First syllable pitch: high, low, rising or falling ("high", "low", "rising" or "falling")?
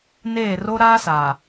falling